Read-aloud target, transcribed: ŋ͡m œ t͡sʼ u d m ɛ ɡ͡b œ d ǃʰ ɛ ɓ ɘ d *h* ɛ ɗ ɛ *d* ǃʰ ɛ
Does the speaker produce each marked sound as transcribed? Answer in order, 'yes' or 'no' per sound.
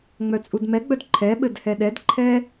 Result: yes, yes

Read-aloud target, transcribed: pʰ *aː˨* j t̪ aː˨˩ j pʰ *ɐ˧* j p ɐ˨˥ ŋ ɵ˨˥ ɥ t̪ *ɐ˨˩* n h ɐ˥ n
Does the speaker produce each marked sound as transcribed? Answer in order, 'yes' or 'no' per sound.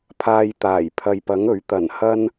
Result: no, no, yes

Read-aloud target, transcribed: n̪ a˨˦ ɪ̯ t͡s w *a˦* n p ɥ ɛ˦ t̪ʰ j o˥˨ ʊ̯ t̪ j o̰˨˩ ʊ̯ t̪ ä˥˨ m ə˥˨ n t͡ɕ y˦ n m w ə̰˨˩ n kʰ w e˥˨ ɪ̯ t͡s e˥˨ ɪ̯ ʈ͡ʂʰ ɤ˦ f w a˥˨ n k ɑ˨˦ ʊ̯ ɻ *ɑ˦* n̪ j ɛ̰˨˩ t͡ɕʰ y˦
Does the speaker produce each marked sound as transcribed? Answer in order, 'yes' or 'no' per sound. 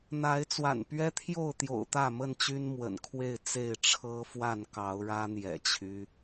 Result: no, no

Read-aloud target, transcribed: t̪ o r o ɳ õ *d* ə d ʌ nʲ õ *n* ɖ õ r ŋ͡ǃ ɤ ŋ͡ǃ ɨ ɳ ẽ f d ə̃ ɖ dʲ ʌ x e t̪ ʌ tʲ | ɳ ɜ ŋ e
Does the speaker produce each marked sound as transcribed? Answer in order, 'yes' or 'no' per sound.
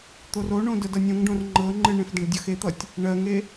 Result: yes, no

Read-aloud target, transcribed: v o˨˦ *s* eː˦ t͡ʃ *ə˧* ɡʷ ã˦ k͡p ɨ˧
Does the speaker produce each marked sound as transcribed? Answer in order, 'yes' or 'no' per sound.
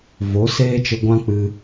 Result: yes, yes

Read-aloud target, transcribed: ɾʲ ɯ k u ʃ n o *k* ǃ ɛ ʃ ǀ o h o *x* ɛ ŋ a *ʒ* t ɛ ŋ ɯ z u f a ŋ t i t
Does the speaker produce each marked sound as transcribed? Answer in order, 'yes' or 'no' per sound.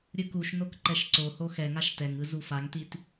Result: yes, yes, no

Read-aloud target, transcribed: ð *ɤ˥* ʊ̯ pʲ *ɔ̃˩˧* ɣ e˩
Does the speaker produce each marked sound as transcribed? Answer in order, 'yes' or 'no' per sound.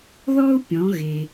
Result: no, yes

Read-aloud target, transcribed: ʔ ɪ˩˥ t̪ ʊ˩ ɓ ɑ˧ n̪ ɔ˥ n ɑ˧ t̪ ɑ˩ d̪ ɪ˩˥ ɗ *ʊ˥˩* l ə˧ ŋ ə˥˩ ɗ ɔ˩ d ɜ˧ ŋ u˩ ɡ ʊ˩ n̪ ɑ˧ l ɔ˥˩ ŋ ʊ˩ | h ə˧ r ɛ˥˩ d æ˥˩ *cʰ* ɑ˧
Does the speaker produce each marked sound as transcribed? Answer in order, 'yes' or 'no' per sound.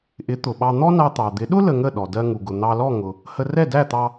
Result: no, no

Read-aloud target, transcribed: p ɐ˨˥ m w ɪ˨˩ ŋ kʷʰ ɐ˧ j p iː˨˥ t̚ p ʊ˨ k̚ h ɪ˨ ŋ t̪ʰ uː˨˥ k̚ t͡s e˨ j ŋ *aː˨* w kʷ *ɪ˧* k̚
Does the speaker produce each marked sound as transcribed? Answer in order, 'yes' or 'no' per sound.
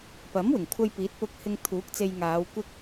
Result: no, yes

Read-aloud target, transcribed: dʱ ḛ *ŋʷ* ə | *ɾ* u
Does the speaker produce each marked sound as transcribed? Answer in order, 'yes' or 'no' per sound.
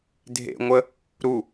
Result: yes, yes

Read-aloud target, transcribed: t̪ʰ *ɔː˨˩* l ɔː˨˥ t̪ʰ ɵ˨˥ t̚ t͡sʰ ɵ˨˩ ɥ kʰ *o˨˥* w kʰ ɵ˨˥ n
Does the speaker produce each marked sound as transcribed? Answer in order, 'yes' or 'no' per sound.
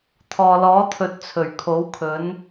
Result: no, yes

